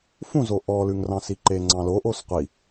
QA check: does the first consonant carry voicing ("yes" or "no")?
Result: no